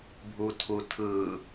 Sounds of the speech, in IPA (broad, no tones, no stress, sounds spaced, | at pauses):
bʱ u tʰ u tʰ ɯ